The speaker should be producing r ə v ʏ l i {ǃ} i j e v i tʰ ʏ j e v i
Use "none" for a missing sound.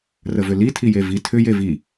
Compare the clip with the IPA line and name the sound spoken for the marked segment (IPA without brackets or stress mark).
tʰ